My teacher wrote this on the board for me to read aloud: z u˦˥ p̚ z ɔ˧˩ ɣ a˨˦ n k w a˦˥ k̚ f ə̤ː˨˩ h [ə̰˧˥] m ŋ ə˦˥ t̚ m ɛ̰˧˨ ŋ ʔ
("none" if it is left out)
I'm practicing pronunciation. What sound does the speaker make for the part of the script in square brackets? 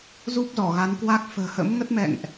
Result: ə̰˧˥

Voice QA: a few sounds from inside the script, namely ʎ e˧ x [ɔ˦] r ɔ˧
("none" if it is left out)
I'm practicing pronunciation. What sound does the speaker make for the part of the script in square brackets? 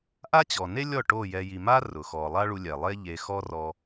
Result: ɔ˦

